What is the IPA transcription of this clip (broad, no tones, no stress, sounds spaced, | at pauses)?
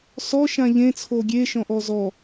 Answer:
s ɔ ʃ ã ʎ ẽ t͡sʰ o ɡʲ e ʃ ɔ̃ ʔ ɔ z ɔ